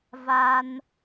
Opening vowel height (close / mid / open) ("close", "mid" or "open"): open